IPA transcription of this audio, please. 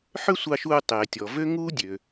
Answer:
ħ ø˥ sʷ ɑ˧ ʃ uː˧ tˤ eː˩ tʲ ɔ˩ v ø˥ ŋ uː˥ dʲ ø˩

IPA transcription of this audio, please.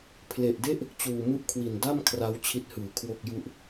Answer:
pʰ l e˨˩ ʔ d e˥˩ ʔ | t͡ɕ uː˨˩ m u˥˩ ʔ kʰ w i˨˩ n d a˥˩ m kʰ r a˦˥ w t͡ɕʰ i˦˥ t̚ h ɯː˩˦ kʰ w o˥˩ k̚ j u˥˩ ʔ

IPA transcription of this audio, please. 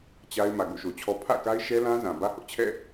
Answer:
t͡ɕ a˦ ɪ̯ m ä˨ ɡ o̰˦˨ ʃ o˨ t͡ɕʰ ɔ˦ pʰ ä̰˦˨ k a˦ ɪ̯ ʃ ɛ˦ l ã˦ z ã˨ b ä˦ h ʊ˦ ʔ t͡ɕʰ ɛ̰˦˨

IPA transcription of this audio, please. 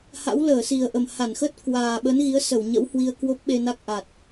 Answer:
h a̰˧˥ w l əː˧˩ s i˨˩ ə̯ ʔ ə˨˩ m h a˧˩ n x ə˦˥ t̚ k w aː˨˩ ɓ ə˨˦ n ɣ i˨˦ ə̯ s ə˧˩ w ɲ ə̰˧˥ w h w i˧ ə̯ k w o˦˥ p̚ ɓ e˧ n a˦˥ k̚ ʔ a˨˩ t̚

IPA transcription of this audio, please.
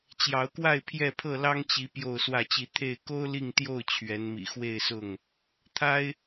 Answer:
t͡ɕ j ɑ˨˦ ʊ̯ k w a˥˨ ɪ̯ pʰ j ɛ˥˨ pʰ ɤ˥˨ l ɑ˦ ŋ t͡ɕ i˨˦ p j o˥˨ ʊ̯ s w ä˥˨ t͡ɕ i˥˨ t̪ʰ e˥˨ ɪ̯ k o˦ ʊ̯ l i˥˨ ŋ t̪ j o˥˨ ʊ̯ t͡ɕʰ ɥ ɛ˨˦ n m ḭ˨˩ x w e˥˨ ɪ̯ s ʊ˥˨ ŋ | t̪ʰ a˦ ɪ̯

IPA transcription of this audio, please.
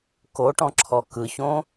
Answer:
k o ʈ ɔ̃ ǁʰ ɔ k ɯ ç õ

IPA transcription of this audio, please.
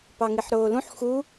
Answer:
p ɑ ŋ i ħ ɾ oː l ũ ħ x u

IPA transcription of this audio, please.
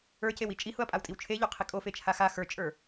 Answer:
ə˞ c e w i t͡ʃʼ i h ʊ ɐ̯ pʼ a w tʼ i w t͡ʃʰ e ʎ o qʰ i kʼ o f e t͡ʃʰ a x a x ə˞ t͡ʃʼ ə˞

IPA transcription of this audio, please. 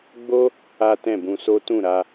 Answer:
ɡ͡b o˦ | a˦ t ɛ̃˦˨ b ũ˧ s o˦ t ũ˦˨ ɾ a˧

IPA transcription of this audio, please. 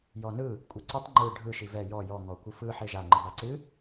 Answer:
j ɔ n ɯ | kʷʼ e ǀ ɯ tˤ ŋ͡ǃ ɯ ɖʱ ɯ ʃ i v ɛ j ɔ j ɔ ŋ ɔ kʷ ɨ f ɯ ħ e ʒ a ŋ͡ǃ ɨ b a ǀ ɨ

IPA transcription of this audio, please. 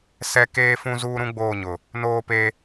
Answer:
s ɛ˦ k eː˦ f ũ˦ z uː˦ ɾ ũ˦ ɡ͡b oː˦˨ ɲ ʊ˨ | n oː˦ p e˦

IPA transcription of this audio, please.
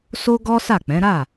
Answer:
s o˦ ɡ ɔ˦ s a˦˨ k͡p ɛ̃˨˦ ɾ a˦˨

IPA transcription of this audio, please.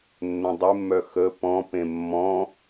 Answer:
nː œ̃ dˤ e mː œ x ə p ɔ̃ p ẽ mː ɔ̃

